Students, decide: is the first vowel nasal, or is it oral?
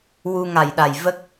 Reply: oral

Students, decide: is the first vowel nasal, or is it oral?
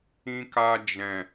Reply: nasal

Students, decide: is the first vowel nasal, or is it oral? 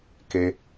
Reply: oral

